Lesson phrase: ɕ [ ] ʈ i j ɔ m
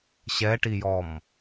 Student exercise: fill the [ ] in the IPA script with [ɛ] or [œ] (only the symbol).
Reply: ɛ